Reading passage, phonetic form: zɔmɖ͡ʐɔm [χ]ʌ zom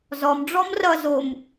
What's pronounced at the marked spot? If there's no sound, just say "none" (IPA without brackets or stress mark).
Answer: r